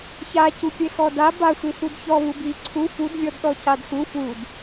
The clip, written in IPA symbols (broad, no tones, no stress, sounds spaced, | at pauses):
ç a c u pʲ ɛ x ɔ d a b a sʷ i s u d ç ɔ β u b i ǀʰ u f u d vʲ ɔ d ɗ ɔ c a d x u f u d